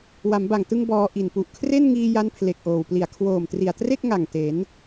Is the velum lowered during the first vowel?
no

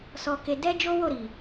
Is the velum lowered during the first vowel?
no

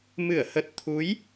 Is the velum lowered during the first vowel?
no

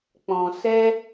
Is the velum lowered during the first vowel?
yes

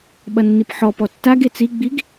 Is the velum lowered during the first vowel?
no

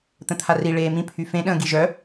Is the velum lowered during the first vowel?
yes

